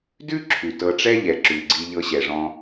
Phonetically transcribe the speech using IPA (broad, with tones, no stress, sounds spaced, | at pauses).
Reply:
d ʉ˥ ǁʰ ʉ˩ t ɤ˨ ʈ͡ʂ ɛ˦ ʎ ɛ˩ ǁ ʉ˩ ɡ͡ǀ i˨ ʎ ɤ˨ ɕ ɛ˩ ʐ ɔ̃˨